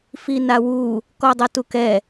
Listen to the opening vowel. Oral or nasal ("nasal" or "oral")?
oral